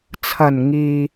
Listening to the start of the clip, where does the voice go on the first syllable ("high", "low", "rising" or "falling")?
low